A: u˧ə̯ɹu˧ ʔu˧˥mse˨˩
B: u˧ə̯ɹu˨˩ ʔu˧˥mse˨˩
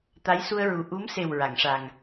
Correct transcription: B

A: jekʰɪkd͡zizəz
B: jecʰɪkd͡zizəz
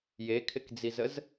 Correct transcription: A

